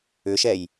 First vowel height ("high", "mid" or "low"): high